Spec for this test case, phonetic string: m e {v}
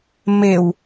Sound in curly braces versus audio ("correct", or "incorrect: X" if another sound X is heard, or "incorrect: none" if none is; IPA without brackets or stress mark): incorrect: w